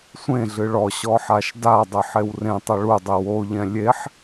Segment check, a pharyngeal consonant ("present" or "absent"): present